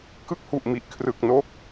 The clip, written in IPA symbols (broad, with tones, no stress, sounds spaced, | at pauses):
k ɯ˥˩ k̚ h u˨˩ ʔ m i˨˩ ʔ kʰ r ɯ˨˩ k̚ n o˦˥ k̚